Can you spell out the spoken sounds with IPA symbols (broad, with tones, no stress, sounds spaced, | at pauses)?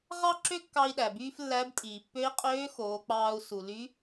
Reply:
ʁ ɑ˥ ǁ ø˥ kː ɑ˧ i̯ ɗ æ˩ b yː˥ f lː æ˧˥ b tʼ iː˩ pː ø˧˥ i̯ qʼ øː˧˥ x oː˩˧ k͡p ɑː˧ u̯ s u˩ l y˧˥